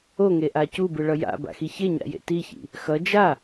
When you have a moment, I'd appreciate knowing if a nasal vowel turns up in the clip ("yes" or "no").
no